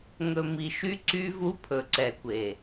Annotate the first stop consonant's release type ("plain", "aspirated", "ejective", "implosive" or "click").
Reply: click